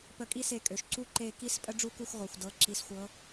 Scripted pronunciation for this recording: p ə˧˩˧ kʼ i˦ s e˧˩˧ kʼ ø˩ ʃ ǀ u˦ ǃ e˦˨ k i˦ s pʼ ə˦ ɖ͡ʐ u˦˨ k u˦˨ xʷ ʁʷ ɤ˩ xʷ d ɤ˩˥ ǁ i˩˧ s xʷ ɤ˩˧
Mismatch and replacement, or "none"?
none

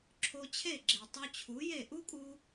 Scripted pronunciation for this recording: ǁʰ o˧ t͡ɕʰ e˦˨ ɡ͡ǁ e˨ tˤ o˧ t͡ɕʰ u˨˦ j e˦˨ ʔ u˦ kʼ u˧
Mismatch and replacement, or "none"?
none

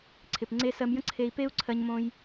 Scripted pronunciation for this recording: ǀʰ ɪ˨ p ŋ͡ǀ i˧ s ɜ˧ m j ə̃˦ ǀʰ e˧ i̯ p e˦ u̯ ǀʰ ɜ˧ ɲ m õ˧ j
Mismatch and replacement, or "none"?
i˧ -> e˧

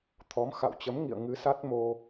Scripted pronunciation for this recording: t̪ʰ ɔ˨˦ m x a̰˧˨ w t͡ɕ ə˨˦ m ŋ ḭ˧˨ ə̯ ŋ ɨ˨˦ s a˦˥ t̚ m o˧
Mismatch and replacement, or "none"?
none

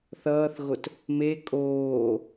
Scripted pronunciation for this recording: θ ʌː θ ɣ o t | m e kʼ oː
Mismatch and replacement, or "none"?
none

